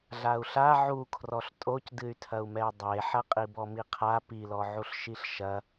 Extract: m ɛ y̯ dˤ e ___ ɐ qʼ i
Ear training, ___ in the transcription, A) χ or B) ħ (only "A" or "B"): B